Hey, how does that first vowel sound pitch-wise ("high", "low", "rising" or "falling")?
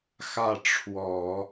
falling